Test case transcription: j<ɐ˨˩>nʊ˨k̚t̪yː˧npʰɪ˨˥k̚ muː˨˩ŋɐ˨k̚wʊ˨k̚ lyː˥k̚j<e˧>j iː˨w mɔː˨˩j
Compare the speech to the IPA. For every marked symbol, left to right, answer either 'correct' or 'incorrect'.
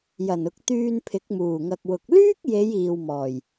correct, incorrect

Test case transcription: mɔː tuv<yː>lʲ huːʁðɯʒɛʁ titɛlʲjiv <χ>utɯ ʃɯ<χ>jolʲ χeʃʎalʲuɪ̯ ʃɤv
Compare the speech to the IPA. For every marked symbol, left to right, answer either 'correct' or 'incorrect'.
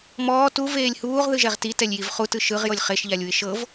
incorrect, correct, incorrect

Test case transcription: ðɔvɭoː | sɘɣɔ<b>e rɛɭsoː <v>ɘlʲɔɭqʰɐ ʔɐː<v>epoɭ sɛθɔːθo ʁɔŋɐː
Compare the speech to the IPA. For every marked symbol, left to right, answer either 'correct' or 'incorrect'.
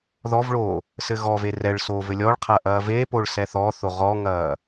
incorrect, correct, correct

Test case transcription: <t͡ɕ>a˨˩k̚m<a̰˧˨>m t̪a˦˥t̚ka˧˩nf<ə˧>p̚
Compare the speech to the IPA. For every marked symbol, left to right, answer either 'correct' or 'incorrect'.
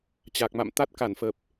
correct, correct, incorrect

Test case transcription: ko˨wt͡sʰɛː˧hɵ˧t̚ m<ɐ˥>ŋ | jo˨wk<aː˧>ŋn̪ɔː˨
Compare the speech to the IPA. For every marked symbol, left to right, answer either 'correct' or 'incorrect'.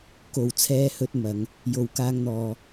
incorrect, correct

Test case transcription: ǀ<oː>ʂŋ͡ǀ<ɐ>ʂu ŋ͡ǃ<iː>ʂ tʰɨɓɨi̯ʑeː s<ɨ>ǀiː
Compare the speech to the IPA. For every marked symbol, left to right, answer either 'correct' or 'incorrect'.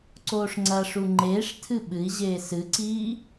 correct, correct, incorrect, correct

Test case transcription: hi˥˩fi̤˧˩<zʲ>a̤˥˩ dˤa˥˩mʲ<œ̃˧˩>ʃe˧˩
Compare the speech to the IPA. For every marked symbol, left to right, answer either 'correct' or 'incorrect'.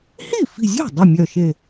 correct, incorrect

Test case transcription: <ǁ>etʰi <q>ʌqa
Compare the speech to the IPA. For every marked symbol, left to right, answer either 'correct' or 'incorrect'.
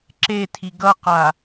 correct, incorrect

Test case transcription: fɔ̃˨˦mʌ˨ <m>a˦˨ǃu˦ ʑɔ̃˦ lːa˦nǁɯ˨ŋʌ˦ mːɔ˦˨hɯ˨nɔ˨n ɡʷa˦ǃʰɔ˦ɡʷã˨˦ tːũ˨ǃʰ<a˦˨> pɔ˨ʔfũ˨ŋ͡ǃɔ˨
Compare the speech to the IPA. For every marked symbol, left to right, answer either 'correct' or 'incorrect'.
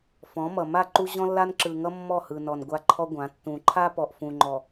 correct, incorrect

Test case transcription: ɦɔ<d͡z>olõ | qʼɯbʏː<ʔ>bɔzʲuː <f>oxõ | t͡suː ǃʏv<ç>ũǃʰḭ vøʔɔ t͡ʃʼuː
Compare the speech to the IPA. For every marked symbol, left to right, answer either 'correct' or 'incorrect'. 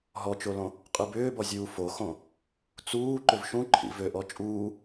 incorrect, incorrect, correct, incorrect

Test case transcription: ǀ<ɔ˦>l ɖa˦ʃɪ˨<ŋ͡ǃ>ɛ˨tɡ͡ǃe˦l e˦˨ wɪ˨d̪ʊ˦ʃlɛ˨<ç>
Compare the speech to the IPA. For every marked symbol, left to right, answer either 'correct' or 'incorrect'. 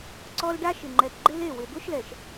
correct, correct, incorrect

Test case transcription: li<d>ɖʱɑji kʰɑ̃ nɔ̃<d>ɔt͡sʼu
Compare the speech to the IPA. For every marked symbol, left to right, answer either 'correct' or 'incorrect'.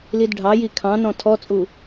correct, incorrect

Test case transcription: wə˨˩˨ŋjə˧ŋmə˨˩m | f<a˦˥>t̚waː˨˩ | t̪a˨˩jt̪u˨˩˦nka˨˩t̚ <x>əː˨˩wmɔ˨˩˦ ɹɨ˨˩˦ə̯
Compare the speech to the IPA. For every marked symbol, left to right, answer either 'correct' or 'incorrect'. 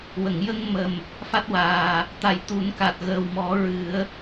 correct, incorrect

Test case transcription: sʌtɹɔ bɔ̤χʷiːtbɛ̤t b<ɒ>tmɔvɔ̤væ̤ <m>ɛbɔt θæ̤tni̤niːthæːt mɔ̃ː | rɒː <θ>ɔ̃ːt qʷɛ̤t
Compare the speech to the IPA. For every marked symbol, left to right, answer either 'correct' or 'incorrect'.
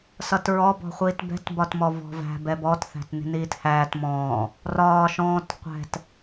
correct, incorrect, incorrect

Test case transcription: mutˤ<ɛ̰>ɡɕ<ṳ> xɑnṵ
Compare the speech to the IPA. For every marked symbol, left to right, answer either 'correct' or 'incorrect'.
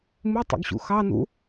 correct, incorrect

